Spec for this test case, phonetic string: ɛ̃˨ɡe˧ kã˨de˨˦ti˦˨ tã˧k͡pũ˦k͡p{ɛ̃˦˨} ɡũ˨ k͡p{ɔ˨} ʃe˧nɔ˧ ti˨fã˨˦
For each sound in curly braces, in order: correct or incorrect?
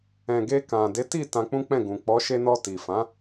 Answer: correct, incorrect: ɔ˨˦

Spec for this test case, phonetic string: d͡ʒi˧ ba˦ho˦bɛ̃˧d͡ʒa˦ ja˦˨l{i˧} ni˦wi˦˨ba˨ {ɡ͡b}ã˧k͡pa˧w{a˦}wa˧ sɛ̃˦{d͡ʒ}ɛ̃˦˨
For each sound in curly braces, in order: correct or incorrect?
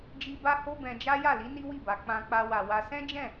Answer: incorrect: i˨˦, incorrect: k͡p, incorrect: a˨, correct

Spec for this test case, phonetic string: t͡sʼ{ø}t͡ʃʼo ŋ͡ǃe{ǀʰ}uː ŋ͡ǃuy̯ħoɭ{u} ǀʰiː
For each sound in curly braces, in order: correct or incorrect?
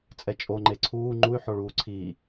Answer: incorrect: ɛ, correct, incorrect: uː

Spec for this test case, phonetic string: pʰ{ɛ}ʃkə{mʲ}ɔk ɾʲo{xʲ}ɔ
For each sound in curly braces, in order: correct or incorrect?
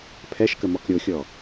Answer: correct, incorrect: m, correct

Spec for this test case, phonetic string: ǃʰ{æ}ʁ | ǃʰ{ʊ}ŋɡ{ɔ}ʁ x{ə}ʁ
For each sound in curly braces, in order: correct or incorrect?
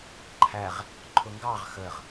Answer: correct, correct, incorrect: ɑ, correct

